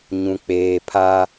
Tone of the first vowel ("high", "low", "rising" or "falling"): low